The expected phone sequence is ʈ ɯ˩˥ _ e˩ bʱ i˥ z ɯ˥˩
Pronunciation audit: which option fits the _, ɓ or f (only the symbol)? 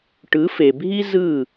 f